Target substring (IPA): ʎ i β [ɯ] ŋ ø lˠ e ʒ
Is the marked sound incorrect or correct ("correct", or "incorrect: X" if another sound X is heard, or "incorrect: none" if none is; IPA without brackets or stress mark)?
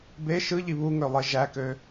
incorrect: u